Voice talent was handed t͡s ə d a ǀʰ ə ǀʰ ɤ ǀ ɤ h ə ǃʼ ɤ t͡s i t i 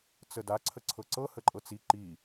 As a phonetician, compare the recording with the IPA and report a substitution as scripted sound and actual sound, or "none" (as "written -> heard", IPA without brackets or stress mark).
t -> ǃ